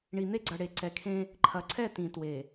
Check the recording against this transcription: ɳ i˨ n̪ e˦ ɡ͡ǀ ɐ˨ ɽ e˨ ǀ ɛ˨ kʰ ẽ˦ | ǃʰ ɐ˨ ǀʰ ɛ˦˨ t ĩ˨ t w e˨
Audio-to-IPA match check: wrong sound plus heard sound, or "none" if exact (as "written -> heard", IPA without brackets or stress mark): none